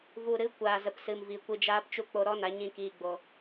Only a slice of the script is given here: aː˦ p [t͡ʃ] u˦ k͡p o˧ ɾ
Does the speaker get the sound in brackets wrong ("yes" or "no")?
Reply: no